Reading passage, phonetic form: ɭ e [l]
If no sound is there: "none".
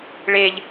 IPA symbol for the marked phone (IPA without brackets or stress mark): ʎ